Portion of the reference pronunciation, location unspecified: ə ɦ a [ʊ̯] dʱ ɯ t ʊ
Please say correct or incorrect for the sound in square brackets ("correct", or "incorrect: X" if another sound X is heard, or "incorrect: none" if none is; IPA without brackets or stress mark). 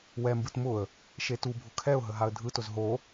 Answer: incorrect: ə̯